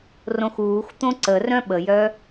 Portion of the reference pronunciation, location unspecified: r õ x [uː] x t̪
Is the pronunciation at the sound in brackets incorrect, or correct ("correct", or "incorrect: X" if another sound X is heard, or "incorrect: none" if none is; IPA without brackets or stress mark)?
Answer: correct